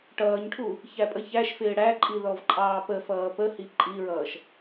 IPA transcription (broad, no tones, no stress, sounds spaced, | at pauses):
ʈ ʌː ɲ ʈʰ u | ç æ pʼ ə ç æ ʃ f ɪː ɽ æ ǃʼ i ð ɔ v ǃʼ ɑː p ə f ʌː p ə h i ǃʼ i ɹ ʌː ʃ